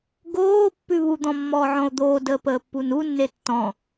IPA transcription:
ɡoː pːʉβud̪ɔ̃ mːɔːʕɔ̃o̯d̪oːdəː pəːpːununːe tːɔ̃

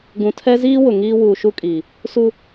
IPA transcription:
ɡũ˨tʰɛ˦ziː˦ wʊ˨ŋiː˦ wuː˨ʃu˦kʼiː˨ | su˦

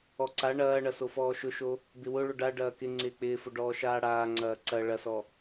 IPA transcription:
ɔǀa ɳɐːɳɐ sofɔːʃʊʃo | bɪwʊ ɭʊɖa ɖɐːkɪ ŋ͡ǀɪːk͡pɪːfʊɖɔː ʃaːɽaː ŋ͡ǀɐːǀɐ ɭɐsɔ

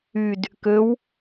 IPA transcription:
yd | køw

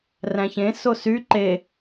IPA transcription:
ræ̃çẽ sosy ǃe

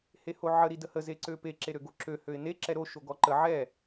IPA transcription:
hehoʕə ɾidəhə zeǀøpe ǁeɾøɡoǁø høɪ̯ne ǁɛɾo ʃoɡɔǃə ʕɛ

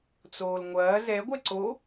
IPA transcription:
t͡soːlŋʷɐː zɛ ɡʷɛǀo

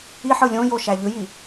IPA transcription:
iħɯ lʲõjo ʃæʎɯji

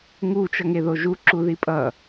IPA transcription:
ŋut͡ʃʌŋeðo ʒuǁuði pʼʌ

